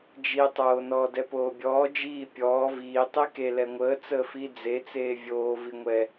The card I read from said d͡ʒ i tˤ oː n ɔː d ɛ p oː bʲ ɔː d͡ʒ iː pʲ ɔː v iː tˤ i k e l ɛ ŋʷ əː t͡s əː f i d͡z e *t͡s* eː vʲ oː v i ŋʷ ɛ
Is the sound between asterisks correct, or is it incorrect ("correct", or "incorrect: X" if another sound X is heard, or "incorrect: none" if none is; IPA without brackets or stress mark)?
correct